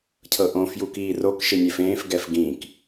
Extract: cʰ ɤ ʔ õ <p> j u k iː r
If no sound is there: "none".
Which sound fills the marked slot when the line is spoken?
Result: f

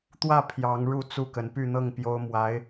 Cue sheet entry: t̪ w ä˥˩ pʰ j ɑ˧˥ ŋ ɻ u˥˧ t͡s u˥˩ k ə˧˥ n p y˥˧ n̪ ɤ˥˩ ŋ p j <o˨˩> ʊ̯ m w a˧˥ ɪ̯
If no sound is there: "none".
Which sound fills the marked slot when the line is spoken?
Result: o˥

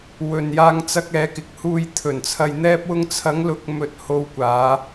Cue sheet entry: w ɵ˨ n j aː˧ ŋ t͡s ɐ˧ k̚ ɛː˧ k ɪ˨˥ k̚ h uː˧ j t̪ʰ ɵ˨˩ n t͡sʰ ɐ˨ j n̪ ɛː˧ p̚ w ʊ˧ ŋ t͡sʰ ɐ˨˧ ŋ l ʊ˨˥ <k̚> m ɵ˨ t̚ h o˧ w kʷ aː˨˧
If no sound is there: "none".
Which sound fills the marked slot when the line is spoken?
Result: k̚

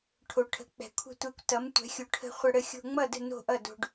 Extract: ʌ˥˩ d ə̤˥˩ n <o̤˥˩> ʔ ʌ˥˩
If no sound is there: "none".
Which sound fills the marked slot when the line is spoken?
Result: o̤˥˩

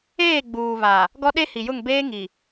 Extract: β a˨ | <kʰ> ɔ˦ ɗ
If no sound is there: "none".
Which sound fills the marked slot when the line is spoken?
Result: ɡ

